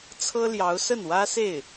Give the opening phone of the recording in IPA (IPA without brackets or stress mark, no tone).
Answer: t͡sʰ